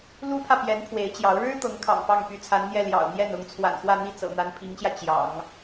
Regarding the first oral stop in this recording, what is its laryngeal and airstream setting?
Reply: aspirated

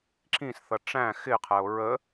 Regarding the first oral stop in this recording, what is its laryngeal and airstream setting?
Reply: click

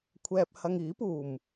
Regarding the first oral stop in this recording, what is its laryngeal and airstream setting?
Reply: aspirated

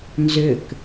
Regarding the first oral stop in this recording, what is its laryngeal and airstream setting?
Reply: plain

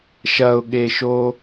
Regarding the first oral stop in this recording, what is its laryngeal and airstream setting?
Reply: implosive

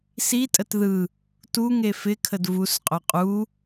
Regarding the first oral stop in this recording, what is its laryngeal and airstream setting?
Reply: ejective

